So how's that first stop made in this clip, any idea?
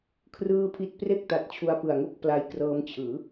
aspirated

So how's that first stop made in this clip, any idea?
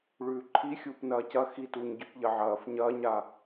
click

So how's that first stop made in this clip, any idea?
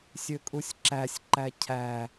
ejective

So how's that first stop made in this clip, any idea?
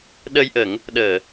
implosive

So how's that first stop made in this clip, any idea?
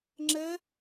click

